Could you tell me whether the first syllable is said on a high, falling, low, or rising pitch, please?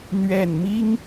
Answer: low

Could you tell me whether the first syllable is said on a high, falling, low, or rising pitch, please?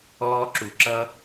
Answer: high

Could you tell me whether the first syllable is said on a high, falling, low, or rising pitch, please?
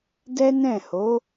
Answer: high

